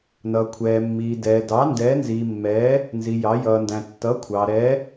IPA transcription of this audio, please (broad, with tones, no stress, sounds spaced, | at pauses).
n ʌ˩ kʷʰ ɛː˩ mː iː˩ d ɛː˩ d ɑ˩˧ n d ɛː˩˧ n z iː˩ mː ɛː˩˧ | n z i˩ j ɑ˩˧ j ʌː˩ n d æ̃˩ tː ʌ˩˧ kʷʰ ɑ˩ ɾ ɛ˩˧